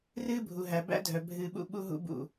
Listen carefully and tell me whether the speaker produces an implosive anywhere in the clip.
yes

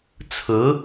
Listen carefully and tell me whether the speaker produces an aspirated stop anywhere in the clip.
yes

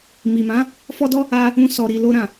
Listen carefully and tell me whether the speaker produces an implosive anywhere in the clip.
no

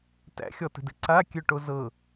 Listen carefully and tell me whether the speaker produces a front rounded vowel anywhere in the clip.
yes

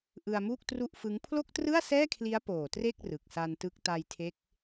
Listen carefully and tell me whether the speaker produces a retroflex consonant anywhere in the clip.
no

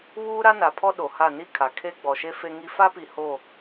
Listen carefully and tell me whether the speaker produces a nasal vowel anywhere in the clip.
no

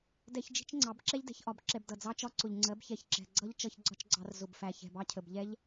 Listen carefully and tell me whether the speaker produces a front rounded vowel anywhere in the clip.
no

